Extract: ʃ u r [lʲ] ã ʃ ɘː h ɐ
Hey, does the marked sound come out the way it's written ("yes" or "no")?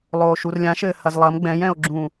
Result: yes